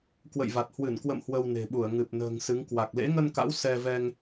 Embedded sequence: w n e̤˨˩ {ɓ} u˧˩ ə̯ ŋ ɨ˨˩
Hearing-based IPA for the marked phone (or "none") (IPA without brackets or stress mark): ɓ